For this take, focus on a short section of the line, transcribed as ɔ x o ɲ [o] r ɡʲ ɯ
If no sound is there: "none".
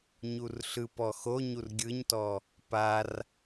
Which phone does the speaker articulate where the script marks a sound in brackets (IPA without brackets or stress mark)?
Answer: u